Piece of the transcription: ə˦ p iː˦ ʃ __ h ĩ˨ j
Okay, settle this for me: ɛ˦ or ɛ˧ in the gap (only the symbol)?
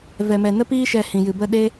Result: ɛ˧